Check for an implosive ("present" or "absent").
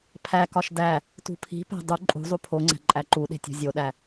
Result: present